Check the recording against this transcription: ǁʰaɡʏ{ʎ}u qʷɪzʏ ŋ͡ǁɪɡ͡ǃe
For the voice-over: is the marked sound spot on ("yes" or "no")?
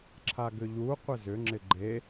yes